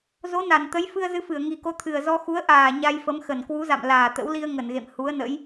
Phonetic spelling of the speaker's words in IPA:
z o˨˦ n a˧˩ n t̪ ə˨˦ j f ɨ˧ ə̯ z ɨ˧ f ɨ˧˩ ə̯ ŋ i˨˩ k o˨˦ t̪ʰ ɨ˨˩ ə̯ z ɔ˧ x u˨˦ ə̯ ʔ aː˨˩ ɲ a˧ j f ə˨˦ m x ə˨˩ n k w u˨˦ z a̰˧˨ m l aː˨˩ t̪ ə̰˧˥ w l i˧ ə̯ ŋ ə˧˩ n ɣ ḛ˧˨ m h u˨˦ ə̯ n ə̰˧˥ j

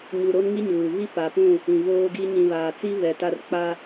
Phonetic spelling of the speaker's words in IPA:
ɲ u˨ ɾ o˦ n ŋ i˦ ɲ uː˨ β i˦ p a˨ p ũ˦˨ | ĩ˨ β oː˦ ɡ i˦ ɲ ĩ˨ β aː˨ t͡s i˦ β ɛ˨ t a˦ r k͡p a˦

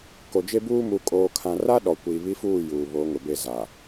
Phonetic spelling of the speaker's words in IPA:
k o˨ d͡ʒ e˦ b uː˦ m u˨˦ kʼ oː˨ kʰ ã˨ r a˦ ɗ ɔ˨ kʷ iː˨ β i˦ f uː˦˨ j uː˨ β o˨˦ ŋ ʊ˨ b e˦˨ z a˨

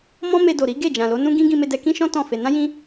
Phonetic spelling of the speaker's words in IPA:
m ɔ̃˦ m e˧ d o˨ ɾ i˨˦ ɡ e˦˨ d͡ʒ ã˨ l o˨˦ n ũ˦ ɡ ĩ˦ ɡ ĩ˧ m e˧ d ɛ˧ k ĩ˦ ʃ ɔ̃˦ t ɔ̃˦˨ f e˧ n ã˦ j ĩ˦

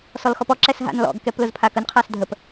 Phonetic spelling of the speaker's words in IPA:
s ɔ l x ɔ p ɔ ǁ ɛ s ɦ a̰ n l ɔ̰ ɡ k ɛ p l ʊ z pʰ a k ə n qʰ a s dʱ ə p

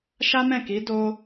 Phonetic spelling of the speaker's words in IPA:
ʃ a˦ m ɛ̃˦˨ k i˨˦ d o˧

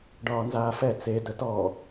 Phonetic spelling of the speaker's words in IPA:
ɖ ɒː n z aː f ɛ t͡s e d ə t ɔ

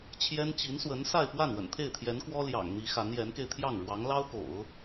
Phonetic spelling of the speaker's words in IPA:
t͡ɕʰ j ɛ˥ n t͡ɕ i˧˥ n s w ə˧˥ n s a˥˧ ɪ̯ p w a˥˩ n w ə̰˨˩ n t̪ʰ e˥˩ ɪ̯ t̪ʰ j ɛ˧˥ n k w ɔ˥ l j ɑ̰˨˩ ŋ n̪ i˧˥ x a˧˥ n j ɛ˧˥ n k e˧ ɪ̯ t̪ʰ j ɑ˥˩ ŋ ɻ w ɑ˧˥ ŋ l ɑ˥ ʊ̯ k o̰˨˩˦ ʊ̯

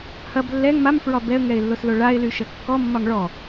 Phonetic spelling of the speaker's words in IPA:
h ɐ b lː ɛ ŋ m a m f ɹ ɒ b ɛ ə̯ ŋ ɛ ɪ̯ lː o s l o ɭ a ɪ̯ l y ʃ ɐ kː ɔ mː ɒ ŋ ɭ ɔ

